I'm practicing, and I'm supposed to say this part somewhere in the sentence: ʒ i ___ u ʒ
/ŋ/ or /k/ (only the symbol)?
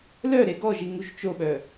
ŋ